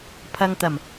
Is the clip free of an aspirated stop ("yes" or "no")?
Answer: no